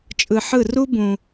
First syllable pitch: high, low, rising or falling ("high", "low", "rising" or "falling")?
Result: low